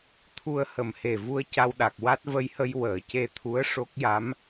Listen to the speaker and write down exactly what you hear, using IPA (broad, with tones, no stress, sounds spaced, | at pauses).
t̪ʰ u˧ ə̯ h ə˨˩ m h e˨˩ v u˧ ə̯ c a˧ w ɗ a˨˩ k̚ w a˦˥ t̚ v ə˧ j h ə˧ j w əː˨˩˨ c e˧ t̪ʰ u˧˥ ə̯ ʂ o˦˥ k̚ j a˧˥ m